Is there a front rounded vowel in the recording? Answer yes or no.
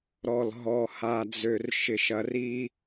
yes